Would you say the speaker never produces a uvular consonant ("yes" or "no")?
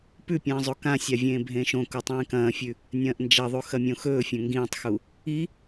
yes